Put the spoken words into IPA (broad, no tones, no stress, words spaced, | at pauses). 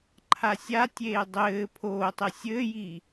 ǃʰasʲatʲeː dˤɘː pʰoːtˤɘ sʲɘːji